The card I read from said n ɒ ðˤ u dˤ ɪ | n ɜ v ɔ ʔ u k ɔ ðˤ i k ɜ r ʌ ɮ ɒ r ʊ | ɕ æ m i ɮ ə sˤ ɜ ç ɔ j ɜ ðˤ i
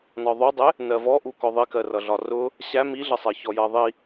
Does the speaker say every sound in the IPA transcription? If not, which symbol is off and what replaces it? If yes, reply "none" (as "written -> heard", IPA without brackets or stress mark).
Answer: none